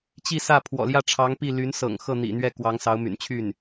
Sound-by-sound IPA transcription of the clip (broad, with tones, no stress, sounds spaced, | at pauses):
t͡ɕ i˥˧ s ä˥˩ pʰ w ɔ̰˨˩ l j ä˥˩ ʈ͡ʂʰ ɑ˧˥ ŋ p i˥˩ l y˧˥ n s ɤ̰˨˩ ŋ x ɤ˥˩ n̪ ḭ˨˩ n̪ ɥ ɛ˥˩ k w ɑ˧˥ ŋ s ɑ˧˥ ʊ̯ m y̰˨˩ n t͡ɕʰ y˥˩ n